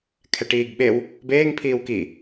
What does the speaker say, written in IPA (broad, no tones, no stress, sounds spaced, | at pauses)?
kʰ ɛ ʈ iː ɡ ɓ e w | b eː ŋ pʰ iː w k i